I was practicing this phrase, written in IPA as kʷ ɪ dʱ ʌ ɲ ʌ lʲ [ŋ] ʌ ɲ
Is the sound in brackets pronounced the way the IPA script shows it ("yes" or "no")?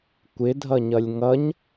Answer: yes